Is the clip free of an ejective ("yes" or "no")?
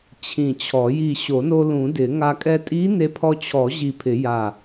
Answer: no